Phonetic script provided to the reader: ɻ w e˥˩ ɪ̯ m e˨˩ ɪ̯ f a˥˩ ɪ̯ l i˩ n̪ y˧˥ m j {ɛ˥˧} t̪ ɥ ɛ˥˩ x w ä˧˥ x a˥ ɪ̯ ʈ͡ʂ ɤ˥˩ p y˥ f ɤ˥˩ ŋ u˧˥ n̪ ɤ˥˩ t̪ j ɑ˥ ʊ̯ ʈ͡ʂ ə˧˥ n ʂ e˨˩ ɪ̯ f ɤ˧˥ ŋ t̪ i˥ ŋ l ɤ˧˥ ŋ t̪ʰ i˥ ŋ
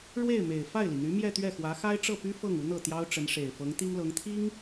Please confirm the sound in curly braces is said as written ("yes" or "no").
yes